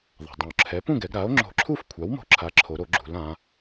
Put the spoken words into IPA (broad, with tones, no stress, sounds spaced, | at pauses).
ðˤ a̤˩ dˤ ũ˩ o̯ ǁʰ ɛ˩˥ p ũ˥˨ ɡ ɛ˩˧ ɡ ɾ a˩˥ o̯ ŋ͡ǁ o̤˧˩˧ ǁʰ u˥˨ f kʷʰ a˩˥ w m o̤˦˥ ǁʰ a˩˥ ǁʰ o˩˧ ɾ o˧˩˧ ɡ͡ǁ ṳ˩˧ l ã˩˧